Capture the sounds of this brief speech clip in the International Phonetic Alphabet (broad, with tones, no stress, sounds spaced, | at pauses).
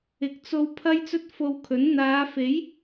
ɪ˨ k̚ t͡s o˧ w pʰ ɐ˥ j t͡s ɵ˥ t̚ f o˧ w kʰ ɵ˨˥ n n̪ aː˨˧ f e˨˥ j